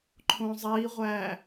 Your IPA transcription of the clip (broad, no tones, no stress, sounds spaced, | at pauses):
ǃʰ õ zˤ i ʁʷ æ